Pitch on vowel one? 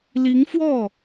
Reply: rising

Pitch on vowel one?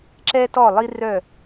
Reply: high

